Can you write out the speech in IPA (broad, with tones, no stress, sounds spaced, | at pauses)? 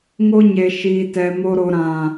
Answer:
ŋ o˦ ɲ e˦ ʃ iː˦ t ɛ˦ m o˦ ɾ o˦ ɾ ã˦